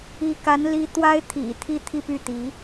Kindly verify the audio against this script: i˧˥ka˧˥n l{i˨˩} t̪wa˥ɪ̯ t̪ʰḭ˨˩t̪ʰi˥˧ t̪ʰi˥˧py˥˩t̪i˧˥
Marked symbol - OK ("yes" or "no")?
no